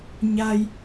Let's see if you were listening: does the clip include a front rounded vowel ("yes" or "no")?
no